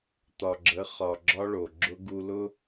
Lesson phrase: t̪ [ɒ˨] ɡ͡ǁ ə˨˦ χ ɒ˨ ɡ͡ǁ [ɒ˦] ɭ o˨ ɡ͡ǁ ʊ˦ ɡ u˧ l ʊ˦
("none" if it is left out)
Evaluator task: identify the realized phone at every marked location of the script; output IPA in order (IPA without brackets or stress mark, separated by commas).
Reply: ɒ˨, ɒ˦